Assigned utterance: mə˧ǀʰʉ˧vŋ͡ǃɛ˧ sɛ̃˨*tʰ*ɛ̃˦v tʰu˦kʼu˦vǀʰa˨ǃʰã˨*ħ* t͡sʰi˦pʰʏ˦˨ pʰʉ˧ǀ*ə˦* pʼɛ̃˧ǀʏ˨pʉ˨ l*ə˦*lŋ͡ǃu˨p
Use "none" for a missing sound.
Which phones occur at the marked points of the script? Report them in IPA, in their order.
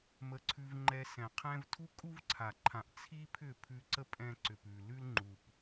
qʰ, ʔ, ə˦, ʉ˦

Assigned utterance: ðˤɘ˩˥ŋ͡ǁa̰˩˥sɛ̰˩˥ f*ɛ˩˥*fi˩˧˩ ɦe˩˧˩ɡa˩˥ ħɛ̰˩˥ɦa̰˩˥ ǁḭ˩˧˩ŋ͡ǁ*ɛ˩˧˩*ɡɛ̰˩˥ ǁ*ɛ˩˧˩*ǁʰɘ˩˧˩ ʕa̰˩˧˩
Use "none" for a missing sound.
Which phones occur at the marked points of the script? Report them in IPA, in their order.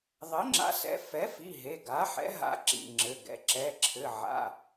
ɛ˩˥, ɘ˩˧˩, ɛ˩˧˩

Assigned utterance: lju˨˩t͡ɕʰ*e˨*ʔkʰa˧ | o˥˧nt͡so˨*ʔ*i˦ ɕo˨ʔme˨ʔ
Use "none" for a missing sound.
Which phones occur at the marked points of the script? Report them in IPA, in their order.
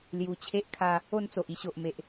e˦, ʔ

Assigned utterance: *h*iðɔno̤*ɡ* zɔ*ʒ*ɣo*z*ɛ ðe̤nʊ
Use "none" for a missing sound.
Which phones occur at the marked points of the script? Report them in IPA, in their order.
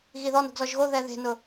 ɣ, ɡ, ʒ, ð

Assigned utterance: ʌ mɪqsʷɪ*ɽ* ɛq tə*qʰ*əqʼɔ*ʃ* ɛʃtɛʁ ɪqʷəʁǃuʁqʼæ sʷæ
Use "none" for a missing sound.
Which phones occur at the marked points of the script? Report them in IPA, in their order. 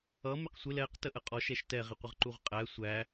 l, ʔ, ʃ

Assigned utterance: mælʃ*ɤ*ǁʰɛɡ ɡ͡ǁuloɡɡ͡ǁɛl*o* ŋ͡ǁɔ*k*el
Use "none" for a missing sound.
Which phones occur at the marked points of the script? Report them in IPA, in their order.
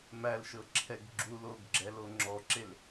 ɤ, o, ǁ

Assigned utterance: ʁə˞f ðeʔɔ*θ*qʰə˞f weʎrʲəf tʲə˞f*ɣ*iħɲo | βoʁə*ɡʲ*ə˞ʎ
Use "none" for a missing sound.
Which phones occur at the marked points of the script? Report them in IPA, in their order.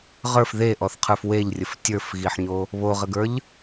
θ, ɣ, ɡ

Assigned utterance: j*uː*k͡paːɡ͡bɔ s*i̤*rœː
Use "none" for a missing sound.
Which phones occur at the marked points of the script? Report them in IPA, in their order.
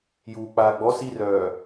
uː, i

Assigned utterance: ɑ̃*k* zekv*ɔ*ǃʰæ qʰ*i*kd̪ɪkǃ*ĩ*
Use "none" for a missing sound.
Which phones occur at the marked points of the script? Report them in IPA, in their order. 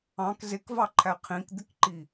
k, ɑ, ĩ, i

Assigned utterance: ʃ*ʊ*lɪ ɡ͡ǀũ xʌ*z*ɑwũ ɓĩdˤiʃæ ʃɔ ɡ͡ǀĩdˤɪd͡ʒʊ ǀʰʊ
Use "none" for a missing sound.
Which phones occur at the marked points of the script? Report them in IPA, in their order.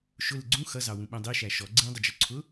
ʊ, z

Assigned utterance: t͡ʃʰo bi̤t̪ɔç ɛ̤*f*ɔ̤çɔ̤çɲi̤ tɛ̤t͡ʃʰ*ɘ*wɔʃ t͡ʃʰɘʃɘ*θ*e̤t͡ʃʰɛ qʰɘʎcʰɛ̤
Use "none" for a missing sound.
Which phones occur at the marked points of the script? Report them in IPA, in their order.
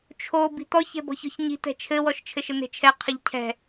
b, ɘ, n̪

